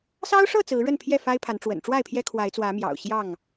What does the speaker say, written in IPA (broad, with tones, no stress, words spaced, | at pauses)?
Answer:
sɑ˦ʊ̯ʂɤ˥˨ t͡sɹ̩˨˦ɻə˥˨npʰjɛ˥˨fa˦ɪ̯ pʰa˨˦nʈ͡ʂwə̰˨˩n ʈ͡ʂwa˥˨ɪ̯pʰjɛ˦ kʰwa˨˦ɪ̯t͡swä˨˦ mjɑ̰˨˩ʊ̯ɕjɑ˥˨ŋ